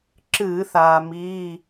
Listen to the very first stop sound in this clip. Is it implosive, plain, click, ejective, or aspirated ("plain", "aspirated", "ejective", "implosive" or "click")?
click